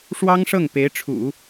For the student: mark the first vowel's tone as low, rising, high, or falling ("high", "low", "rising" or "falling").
high